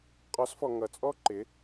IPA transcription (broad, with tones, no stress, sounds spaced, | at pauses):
qʼ ɔ˨˦ s f ɔ˨ ŋ ʌ˨ t͡sʼ ɔ˦ ǃ ɪ˨˦